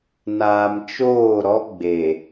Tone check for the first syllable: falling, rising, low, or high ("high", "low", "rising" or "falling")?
low